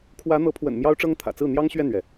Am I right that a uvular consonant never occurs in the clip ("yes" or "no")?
yes